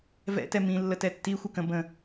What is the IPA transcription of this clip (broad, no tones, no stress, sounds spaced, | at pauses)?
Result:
v ɛ̰ t ɛ m ĩ lː ə t ɛ tː i xʷ ʌ k ə̃ b ə̃